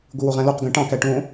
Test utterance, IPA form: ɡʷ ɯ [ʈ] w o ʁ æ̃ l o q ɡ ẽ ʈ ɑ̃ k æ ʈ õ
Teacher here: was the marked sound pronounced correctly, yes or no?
no